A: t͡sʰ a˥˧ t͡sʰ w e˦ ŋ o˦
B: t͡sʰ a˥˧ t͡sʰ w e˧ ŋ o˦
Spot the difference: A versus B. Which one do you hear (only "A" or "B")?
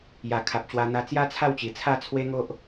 A